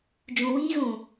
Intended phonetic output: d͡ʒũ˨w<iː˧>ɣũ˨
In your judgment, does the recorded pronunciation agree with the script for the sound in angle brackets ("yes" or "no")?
yes